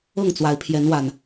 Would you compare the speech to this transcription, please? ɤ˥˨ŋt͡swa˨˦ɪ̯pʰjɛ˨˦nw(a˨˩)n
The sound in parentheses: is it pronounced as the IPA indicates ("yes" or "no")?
yes